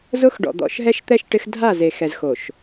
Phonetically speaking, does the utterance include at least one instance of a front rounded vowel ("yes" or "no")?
no